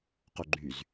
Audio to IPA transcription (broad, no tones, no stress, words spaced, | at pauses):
qoɡ͡ǃyz